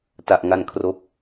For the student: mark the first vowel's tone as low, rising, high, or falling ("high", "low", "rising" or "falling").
low